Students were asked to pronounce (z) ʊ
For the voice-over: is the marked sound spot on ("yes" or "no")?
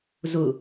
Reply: yes